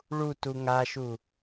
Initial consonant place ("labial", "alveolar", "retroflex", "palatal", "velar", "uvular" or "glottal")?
retroflex